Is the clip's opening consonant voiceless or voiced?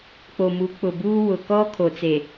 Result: voiceless